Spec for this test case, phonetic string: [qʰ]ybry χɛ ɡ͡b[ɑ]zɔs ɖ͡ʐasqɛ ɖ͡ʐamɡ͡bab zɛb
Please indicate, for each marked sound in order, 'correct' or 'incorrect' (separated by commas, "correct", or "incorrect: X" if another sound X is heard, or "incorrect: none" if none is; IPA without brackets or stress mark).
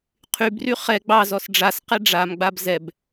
correct, correct